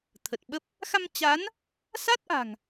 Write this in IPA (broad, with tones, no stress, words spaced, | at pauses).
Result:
t̪ʰə˨˩t̚ɓə˦˥p̚ | xa˧mt͡ɕa˨˦n | sa˦˥t̚ʔa̤˨˩ŋ